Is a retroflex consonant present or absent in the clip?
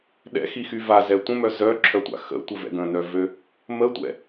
absent